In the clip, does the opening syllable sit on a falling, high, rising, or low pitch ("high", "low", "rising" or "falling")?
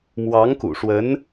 rising